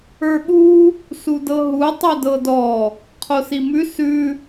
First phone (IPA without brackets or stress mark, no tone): ə˞